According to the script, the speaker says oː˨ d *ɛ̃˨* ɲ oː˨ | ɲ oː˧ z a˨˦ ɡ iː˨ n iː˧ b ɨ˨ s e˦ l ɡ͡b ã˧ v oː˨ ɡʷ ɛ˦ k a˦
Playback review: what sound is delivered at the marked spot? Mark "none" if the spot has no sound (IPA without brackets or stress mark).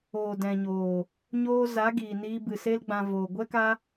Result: ɛ̃˨